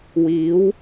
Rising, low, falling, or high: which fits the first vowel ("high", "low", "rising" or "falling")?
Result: rising